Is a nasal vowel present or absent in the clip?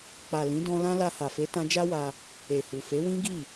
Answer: present